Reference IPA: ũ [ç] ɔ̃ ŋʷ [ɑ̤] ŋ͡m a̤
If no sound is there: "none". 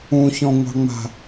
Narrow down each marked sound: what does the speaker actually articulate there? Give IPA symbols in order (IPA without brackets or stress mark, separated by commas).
ç, ɑ̤